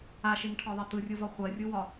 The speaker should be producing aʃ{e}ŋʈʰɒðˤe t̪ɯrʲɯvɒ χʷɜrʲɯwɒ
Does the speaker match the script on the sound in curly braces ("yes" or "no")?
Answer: yes